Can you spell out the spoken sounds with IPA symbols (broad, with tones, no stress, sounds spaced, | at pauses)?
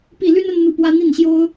p i˥˩ l y˥ n ə˥ n n̪ u˥˩ p w ä˥ n̪ i˥˩ n ɕ j o˥ ʊ̯